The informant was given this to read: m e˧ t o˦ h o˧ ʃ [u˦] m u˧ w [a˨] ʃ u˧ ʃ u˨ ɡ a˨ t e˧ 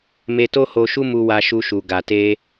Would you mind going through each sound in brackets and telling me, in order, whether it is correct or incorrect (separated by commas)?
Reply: correct, incorrect